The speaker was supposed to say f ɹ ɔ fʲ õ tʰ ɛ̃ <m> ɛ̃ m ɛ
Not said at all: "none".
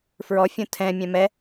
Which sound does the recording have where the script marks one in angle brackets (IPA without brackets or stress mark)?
mʲ